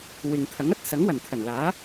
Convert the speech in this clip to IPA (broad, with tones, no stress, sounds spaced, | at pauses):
w ɪ˨ ŋ t̪ʰ ɐ˨˥ ŋ ɐ˥ t̚ s ɐ˨˥ ŋ w ɐ˨˩ n t̪ʰ ɐ˨˩ n l aː˨˥